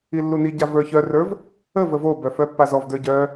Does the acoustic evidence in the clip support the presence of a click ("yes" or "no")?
no